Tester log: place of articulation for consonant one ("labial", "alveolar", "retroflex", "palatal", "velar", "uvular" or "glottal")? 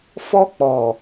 labial